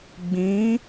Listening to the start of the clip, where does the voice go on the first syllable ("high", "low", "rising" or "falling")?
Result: rising